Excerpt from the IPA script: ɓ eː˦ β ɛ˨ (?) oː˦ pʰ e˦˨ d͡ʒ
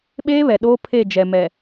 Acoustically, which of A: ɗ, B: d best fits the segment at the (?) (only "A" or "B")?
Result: A